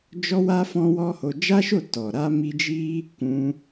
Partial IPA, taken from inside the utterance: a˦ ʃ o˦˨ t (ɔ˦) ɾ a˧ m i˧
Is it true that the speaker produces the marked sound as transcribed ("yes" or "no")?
no